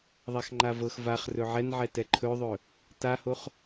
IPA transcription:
ðˤaxŋ͡ǃavɤx vaχrɵ ʕɛnʕɛtɛ ǃʰɵðˤɵ | tahoχ

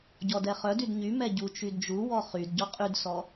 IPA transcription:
ɟɔdɛχœdyd ɲymɛ ɟu t͡ʃydd͡ʒuwɔ χyd ɟɔqʼydsɔ

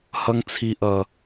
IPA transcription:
hʌ˦ŋt͡sʰi˦ʔʌ˦

